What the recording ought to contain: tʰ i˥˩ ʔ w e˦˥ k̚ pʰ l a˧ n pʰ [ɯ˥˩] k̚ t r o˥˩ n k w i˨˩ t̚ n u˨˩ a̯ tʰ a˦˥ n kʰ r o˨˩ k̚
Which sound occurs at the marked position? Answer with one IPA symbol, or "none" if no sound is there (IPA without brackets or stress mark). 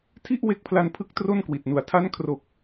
ɯ˦˥